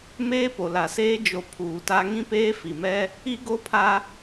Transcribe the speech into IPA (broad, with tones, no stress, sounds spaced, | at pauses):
m eː˦ p o˨ l a˨ s eː˦ d͡ʒ o˨ pʰ uː˨ t a˦ ŋ ĩ˦ p eː˦ f i˨ m ɛ˦ | i˦ ɡ o˦ pʰ a˦